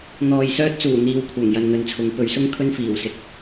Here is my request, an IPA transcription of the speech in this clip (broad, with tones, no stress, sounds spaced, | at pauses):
n̪ ɔː˨ j s œː˧ t̚ t͡s uː˨˩ n̪ iː˨ w kʷʰ œː˨˩ ŋ j ɐ˨ n n̪ ɵ˨ n t͡sʰ ʊ˨˥ ŋ p ɵ˨ ɥ s ʊ˥ ŋ kʰ ɵ˥ n f iː˨˩ w s ɪ˨˥ k̚